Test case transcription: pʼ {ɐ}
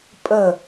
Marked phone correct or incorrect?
incorrect